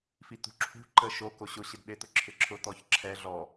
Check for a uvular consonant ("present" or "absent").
absent